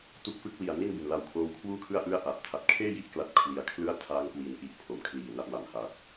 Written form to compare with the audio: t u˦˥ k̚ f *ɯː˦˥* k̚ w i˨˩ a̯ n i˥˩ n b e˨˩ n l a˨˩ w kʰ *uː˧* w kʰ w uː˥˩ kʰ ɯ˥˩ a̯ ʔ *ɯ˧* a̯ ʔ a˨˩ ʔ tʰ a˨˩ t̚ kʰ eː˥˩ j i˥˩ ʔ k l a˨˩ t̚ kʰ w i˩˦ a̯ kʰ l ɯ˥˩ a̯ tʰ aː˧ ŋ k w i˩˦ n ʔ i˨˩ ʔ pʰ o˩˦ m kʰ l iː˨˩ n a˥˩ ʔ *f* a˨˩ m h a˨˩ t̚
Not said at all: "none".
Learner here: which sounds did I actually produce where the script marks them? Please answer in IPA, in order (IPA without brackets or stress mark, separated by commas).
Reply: ɯ˦˥, oː˧, ɯ˥˩, m